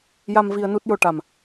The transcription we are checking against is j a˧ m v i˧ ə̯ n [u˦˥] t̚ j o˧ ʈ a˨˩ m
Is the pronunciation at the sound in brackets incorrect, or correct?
correct